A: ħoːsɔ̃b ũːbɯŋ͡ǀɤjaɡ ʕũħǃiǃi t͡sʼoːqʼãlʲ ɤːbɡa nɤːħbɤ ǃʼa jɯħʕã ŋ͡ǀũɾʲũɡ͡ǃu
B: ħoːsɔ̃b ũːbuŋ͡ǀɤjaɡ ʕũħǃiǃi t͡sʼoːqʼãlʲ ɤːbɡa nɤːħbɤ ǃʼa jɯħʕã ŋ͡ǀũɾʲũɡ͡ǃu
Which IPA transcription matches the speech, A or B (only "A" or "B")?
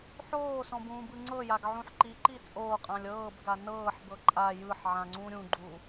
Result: A